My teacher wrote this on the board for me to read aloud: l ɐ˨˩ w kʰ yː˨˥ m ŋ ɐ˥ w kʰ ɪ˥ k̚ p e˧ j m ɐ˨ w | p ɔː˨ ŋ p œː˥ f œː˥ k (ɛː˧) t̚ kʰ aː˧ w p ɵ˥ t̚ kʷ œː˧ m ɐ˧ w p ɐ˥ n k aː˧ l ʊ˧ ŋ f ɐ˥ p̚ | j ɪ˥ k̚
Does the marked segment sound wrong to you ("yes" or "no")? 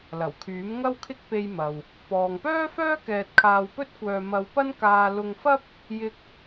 no